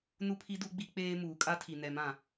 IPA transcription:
nu˦pʰi˦ du˦ɡ͡bi˦ k͡peː˦ muː˨kʼa˦tʰi˨ nɛ˨˦mã˨

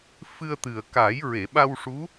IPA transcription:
fɨ˧ə̯t̪ɨ˨˩ə̯ ka˨˩˦j ɹe˨˩˨ɓa˧wʂu˧˥

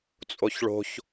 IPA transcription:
t͡sʼoçɭo̤ç

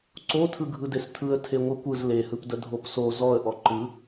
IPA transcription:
ǀotʰɯ ɡʱɯdestʰɯə̯ tʰeŋʷɯkʷɯz lehɯpdə dʱopso zɔə̯ʔɔ ǃɯ

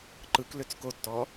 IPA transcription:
ǃɯkløt͡s kotːɔ

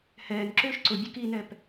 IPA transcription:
hɛːnǁʏːʃ ǀʊbʲʊ kinɛp

